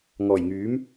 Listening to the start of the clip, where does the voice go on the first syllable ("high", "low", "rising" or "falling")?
low